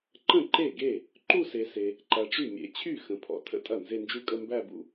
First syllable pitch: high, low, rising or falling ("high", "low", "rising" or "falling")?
falling